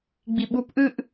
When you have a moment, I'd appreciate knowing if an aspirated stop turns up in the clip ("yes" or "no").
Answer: no